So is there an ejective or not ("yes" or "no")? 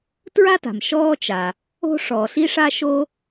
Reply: no